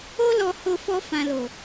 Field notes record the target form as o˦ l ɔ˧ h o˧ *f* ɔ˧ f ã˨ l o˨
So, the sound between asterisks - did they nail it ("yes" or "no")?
yes